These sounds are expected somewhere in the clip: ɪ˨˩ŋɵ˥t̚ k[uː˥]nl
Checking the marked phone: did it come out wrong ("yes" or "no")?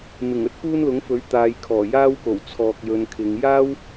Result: no